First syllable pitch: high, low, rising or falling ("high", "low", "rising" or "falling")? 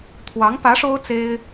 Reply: rising